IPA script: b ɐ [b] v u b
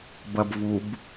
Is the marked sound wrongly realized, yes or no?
no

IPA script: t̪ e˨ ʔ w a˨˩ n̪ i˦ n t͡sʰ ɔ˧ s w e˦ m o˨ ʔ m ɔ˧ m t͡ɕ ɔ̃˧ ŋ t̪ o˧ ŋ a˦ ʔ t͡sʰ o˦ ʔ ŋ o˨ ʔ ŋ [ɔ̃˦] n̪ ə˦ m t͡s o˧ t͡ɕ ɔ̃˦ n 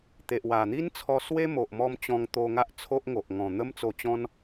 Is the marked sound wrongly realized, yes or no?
yes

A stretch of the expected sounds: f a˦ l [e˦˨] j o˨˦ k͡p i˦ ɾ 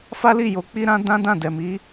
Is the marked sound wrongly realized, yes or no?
yes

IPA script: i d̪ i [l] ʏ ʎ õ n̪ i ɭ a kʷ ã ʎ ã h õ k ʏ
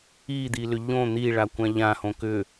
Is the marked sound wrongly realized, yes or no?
no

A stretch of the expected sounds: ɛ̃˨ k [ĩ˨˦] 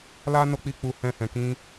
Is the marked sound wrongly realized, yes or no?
no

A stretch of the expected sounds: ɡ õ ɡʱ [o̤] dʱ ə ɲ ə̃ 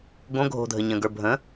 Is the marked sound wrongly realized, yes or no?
no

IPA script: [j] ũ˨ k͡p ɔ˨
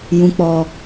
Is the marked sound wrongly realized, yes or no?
no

